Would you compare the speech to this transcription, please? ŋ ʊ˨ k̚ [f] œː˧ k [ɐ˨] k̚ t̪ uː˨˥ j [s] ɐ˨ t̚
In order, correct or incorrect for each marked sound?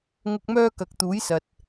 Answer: incorrect: m, correct, correct

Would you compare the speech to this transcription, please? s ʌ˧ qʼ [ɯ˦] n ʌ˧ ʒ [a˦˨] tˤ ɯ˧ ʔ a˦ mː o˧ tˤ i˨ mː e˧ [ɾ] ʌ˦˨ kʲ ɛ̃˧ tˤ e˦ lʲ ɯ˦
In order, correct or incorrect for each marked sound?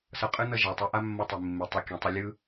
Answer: correct, incorrect: a˨, incorrect: tˤ

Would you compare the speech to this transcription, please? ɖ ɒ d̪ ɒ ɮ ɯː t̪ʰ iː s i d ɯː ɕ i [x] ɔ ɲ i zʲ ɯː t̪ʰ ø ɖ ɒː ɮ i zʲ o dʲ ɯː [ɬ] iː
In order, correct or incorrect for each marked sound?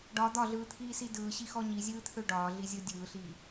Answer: correct, correct

